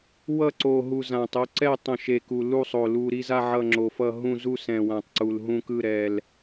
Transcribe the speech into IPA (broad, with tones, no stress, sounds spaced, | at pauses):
w ʌ˦˨ ǀ o˨˩ ɦ u˨˩ z ã˨˩ tˤ o˦˨ ǀ ɛ˦˨ tˤ õ˨˩ ʃ e˨˩ k u˨˩ l u˦˨ sˤ o˨˩ l u˨˩ ɾ i˦˨ z a˦˨ ʕ ʌ˦˨ ŋ͡ǁ o˨˩ f ʌ˦˨ ɦ ũ˦˨ z u˦˨ s ɛ̃˨˩ w ã˨˩ tˤ ǀ u˨˩ l ɦ ũ˦˨ k ɯ˦˨ ɾ ɛ˨˩ l